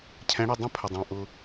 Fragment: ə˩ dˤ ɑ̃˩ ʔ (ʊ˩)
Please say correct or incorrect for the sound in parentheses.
correct